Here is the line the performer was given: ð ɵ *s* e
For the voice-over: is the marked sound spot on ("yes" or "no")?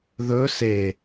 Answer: yes